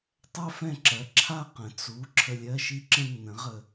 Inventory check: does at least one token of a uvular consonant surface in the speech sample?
yes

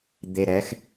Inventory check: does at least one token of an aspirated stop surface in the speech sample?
no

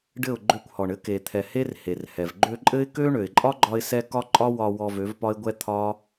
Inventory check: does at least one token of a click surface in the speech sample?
yes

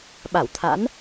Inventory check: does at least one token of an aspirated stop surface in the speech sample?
yes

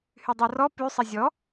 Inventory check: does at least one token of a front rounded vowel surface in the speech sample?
yes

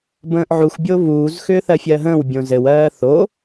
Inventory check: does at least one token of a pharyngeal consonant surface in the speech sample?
yes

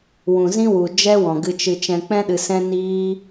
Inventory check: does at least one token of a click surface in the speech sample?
no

